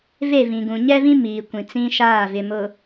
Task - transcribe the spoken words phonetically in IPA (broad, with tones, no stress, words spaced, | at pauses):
ve˦˨vĩ˨ɡũ˨ ɲɛ˦vĩ˦ miː˨kʷĩ˨t͡sĩ˦ʃaː˦˨ vɪ˨mʊ˨